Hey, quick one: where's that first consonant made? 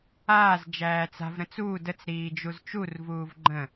tongue tip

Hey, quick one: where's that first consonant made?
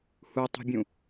throat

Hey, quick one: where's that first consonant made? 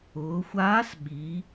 velum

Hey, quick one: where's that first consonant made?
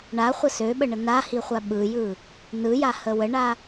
retroflex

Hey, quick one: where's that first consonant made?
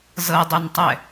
tongue tip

